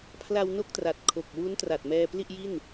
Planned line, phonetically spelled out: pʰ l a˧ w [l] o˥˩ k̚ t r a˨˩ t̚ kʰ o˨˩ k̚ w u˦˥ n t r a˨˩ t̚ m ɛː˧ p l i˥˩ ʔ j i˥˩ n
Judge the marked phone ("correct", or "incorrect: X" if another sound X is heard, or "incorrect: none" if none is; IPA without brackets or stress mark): incorrect: n